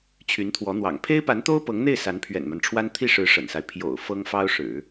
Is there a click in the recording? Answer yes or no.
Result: no